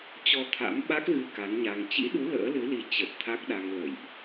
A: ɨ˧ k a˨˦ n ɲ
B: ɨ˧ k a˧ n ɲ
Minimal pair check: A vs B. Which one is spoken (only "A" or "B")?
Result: A